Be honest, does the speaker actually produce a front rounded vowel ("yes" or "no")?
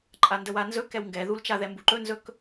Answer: no